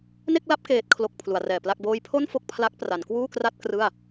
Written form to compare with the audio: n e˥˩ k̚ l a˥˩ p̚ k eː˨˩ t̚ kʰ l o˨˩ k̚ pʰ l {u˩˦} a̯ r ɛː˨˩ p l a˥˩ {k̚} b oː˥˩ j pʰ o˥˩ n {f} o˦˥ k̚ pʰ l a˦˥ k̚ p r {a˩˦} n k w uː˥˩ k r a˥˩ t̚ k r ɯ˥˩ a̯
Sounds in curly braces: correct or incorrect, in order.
correct, correct, correct, correct

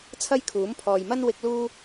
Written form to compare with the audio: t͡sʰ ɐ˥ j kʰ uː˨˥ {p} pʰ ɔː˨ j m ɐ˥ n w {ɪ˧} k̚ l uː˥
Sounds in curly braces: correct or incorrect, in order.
incorrect: m, correct

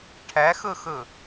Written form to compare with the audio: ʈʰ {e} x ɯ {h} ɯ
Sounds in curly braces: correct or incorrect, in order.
incorrect: ɛ, incorrect: x

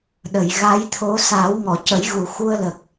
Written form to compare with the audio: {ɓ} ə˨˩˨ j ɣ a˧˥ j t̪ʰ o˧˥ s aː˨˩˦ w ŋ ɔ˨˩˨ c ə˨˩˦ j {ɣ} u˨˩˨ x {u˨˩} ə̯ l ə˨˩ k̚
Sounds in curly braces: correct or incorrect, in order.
incorrect: ɗ, correct, incorrect: u˧

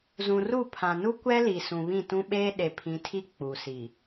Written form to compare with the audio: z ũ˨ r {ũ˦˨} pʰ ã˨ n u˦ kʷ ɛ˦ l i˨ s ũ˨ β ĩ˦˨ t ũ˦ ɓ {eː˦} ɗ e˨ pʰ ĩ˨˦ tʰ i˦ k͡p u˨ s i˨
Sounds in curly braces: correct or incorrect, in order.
incorrect: u˦˨, correct

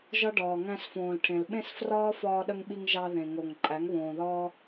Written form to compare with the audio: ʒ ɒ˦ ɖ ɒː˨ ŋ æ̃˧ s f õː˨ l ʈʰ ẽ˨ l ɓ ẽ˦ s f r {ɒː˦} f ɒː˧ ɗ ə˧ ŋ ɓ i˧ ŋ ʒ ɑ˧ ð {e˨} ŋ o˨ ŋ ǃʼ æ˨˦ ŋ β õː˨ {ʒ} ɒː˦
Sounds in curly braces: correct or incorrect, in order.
correct, incorrect: ẽ˨, incorrect: ð

